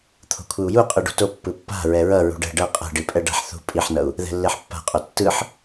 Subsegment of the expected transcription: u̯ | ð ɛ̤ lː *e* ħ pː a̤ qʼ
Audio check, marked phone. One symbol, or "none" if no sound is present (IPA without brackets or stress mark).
e